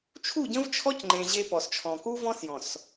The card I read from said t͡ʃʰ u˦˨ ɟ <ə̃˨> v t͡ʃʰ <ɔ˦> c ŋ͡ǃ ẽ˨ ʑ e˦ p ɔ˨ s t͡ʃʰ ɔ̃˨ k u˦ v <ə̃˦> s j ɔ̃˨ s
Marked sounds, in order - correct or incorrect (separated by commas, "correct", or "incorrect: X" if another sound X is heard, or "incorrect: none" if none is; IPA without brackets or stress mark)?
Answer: incorrect: ə̃˦, correct, incorrect: ɔ̃˦